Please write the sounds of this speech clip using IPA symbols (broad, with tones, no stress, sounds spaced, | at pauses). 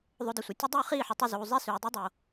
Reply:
ðˤ o˧ d ɐ˨ sʷ ɐ˨ tʲ ɵ˦ dˤ ʉː˦ χ iː˦˨ ħ u˨ tˤ u˧ z uː˨ zˤ e˦ s ʉː˨ dˤ i˦ dˤ o˨